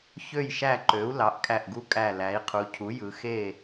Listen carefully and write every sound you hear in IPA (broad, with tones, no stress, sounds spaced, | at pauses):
ç ø˥˨ j ʃ æ˥˨ ǃ ø˩˥ u̯ l ɑ˩˥ ʔ kʼ æ˧˩ ʔ ɡ u˦ kʼ æ˧˩ l æ˩˧ i̯ qʰ u˩˧ cʰ u˩˥ j ɯ˩˧ x e˥˨